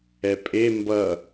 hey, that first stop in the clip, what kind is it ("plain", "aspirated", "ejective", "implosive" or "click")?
ejective